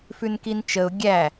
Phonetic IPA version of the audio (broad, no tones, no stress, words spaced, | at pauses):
fʉnkint͡ʃəʊ̯ ɡʲæ